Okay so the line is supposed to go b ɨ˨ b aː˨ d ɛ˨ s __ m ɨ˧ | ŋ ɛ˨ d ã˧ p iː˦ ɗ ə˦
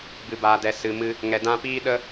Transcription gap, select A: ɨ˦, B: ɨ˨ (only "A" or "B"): B